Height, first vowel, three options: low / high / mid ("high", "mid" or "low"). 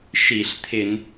high